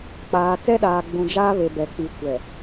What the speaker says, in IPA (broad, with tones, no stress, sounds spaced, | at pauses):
k͡p aː˨ t͡s ɛ˦ ɗ aː˨ ɡ͡b ũ˨ d͡ʒ aː˦ β e˨ b ɛ˨ k͡p i˨ kʷ ɛ˨